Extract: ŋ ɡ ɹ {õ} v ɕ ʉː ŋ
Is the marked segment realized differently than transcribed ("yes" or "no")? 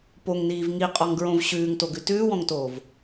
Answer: no